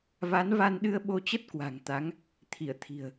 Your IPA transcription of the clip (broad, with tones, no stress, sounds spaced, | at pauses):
v a˨˦ n v a˧ n ɗ ɨ˧ ə̯ ɓ o˧ t͡ɕ ə˦˥ t̚ k w a̤˨˩ ŋ t̪ a˨˦ ŋ | t̪ʰ i˧˩ ə̯ t̪ʰ i̤˨˩ ə̯